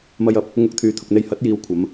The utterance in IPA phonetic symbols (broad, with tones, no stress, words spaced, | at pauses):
mɐ˨jɐ˨˥p̚ | ŋʊ˧k̚t̪ʰyː˨t̪ʰʊ˨k̚n̪e˧j hɐ˨˥t̚jiː˨˧wkʷʰɐ˨˧m